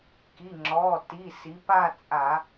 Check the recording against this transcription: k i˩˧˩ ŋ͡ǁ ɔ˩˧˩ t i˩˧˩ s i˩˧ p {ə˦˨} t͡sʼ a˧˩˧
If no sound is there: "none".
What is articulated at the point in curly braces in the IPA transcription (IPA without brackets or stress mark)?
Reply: a˦˨